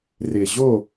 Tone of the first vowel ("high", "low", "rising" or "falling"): low